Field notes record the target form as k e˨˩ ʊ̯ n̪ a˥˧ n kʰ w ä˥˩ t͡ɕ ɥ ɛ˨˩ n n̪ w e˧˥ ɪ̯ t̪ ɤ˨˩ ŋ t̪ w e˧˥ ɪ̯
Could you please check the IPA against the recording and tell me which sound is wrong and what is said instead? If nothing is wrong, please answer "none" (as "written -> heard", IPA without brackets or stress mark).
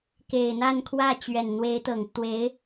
ʊ̯ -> ɪ̯